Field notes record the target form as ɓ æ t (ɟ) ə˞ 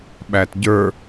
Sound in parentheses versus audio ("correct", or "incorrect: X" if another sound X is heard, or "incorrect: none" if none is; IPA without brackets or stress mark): correct